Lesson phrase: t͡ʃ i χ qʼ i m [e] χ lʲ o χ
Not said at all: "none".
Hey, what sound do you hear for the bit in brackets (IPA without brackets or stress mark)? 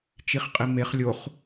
e